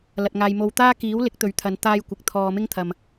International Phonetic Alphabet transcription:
lɐ˧t̚ŋaː˧j mo˧wt̪aː˥ kiː˨˥wlɪ˨˥k̚t̪ɵ˨˧ɥt̪ʰɐ˨˧n t̪aː˥jkʷɪ˧k̚ t̪ʰɔː˧mɪ˥ŋt̪ʰɐ˧m

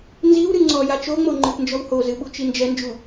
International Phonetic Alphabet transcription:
nziw ɾɨŋ͡ǀɔja t͡ʃoŋ͡mo ŋ͡ǃɨpnd͡ʒɔwhozɨ ɓut͡ʃind͡ʒɛnd͡ʒu

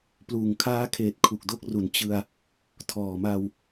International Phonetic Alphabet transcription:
pluː˨˩ŋkʰaː˦˥kʰeː˨˩t̚ kʰu˨˩k̚do˥˩k̚ru˨˩n t͡ɕɯ˧a̯ | tʰɔː˨˩ma˧w

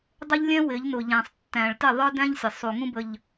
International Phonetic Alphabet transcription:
dˤɪ˦ʎlʲɛ̃˦ wɪ˨˦ʎnʊ˨ʎæ̃˨sˤ tːæ̃˨ɭtɪ˦˨ ðˤə˞˦dæ̃˦ʎsʲə˨ sˤu˨ŋũ˦bə˨ʎ

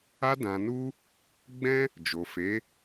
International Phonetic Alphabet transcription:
a˧dã˨nu˧ | ɡ͡bɛ̃˦ | d͡ʒo˨fe˨˦

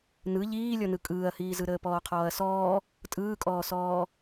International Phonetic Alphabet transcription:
nɯ ʎiːlʲɔnɯ kʼɯːɐ̯hiːzɯ ɾəːpɔːqʰɔːɐ̯sɔː | tʼɯːkʼɔːsɔː

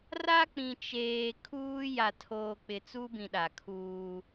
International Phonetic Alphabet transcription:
ra˦k͡pĩ˨ t͡ʃeː˨ kʰuː˦ ja˨tʰoː˨k͡pɪ˨ t͡su˦bĩ˨ɗa˨kʰuː˦

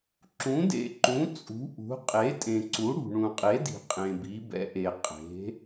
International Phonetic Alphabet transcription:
ǁũ˨˥dḛ˨ǃũ˨˥ t͡sʼṳ˨˥ʔṳ˨˥ qʼe˨˥tʼẽ˨ǀu˨˥ ɽṳ˨ɳũ˨qʼe˨˥di̤˨ qʼẽ˨bi˨˥bɛ̰˨˥ʔe˨ qʼe̤˨˥

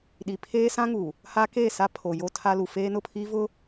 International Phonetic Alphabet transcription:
ɗi˨pʰeː˦sã˦ŋu˨ | ha˦ke˦˨ sa˦ pʰo˨jo˦ tʰa˦lu˨ feː˦nʊ˦˨pʰiː˦vʊ˦

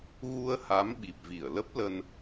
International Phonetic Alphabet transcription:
ɣu˧ə̯ha˨˦m ɓi˨˩p̚vi˧˩ə̯lə˦˥p̚lə˧n

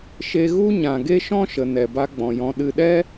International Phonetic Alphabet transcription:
ʃe˧ɣu˦ ɲã˨ɡe˦ʃɔ̃˦ʃə˨ nɛ˨ba˧ɡ͡bɔ̃˨jɔ̃˧ ɗɨ˧ɗɛ˦

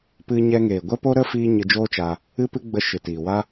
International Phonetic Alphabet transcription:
pɨ˧ɲɛ˧ŋeː˨ ɡʷɛ˦po˦ɾə˦ fiː˦ ɲɨ˧d͡ʒoː˦t͡ʃa˧ | ɨ˦pɨ˦ ɡ͡bə˧ ʃɨ˨tiː˨ wa˦

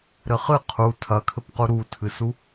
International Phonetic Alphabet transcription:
ɾɘχɨ qʰu tʰɐkʰɘpqu ɾutʰɨsu

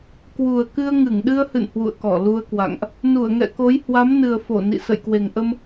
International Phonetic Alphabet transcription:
kwu˨˩ə̯kɨ˧ə̯ ŋɨ˧˩ŋɗɨ˧ə̯hɨ̰˧˨n hwṵ˧˨ə̯kɔ˧˩lu˧ə̯kwa̰˧˨ŋʔ | nu˧˩ə̯ŋɛ̰˧˨ko˨˦j hwa˨˦mnɨ˨˩ə̯fo˧˩ nḭ˧˨ sə̰˧˨jkwe˨˩ŋʔə˧m

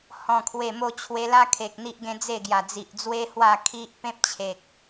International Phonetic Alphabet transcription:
hɔ̃˨˩kʰwe˨˩mo˧ t͡ɕʰwe˧la˦kʰe˨k̚ n̪i˦ʔɡẽ˦d͡ze˥˧ ɡja˨˩d͡zi˨ʔd͡zwe˦ hwa˥˧kʰi˦ʔ pẽ˦p̚t͡ɕʰe˨k̚

